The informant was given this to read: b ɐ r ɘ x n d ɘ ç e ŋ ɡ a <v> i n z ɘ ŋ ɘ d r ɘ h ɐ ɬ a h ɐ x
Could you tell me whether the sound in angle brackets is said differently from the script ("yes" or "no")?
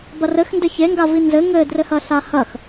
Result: no